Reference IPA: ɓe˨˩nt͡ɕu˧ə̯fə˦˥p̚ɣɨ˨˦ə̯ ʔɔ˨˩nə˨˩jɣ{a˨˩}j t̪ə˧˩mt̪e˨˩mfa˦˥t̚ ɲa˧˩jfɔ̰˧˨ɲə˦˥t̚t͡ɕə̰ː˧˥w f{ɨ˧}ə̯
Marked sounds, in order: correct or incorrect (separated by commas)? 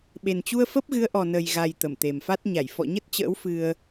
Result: correct, correct